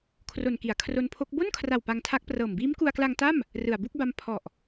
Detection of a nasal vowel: absent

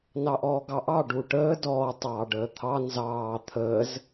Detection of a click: absent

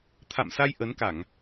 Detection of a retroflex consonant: absent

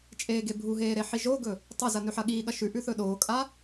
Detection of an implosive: present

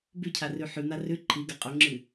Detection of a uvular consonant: present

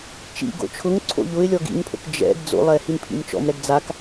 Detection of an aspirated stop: present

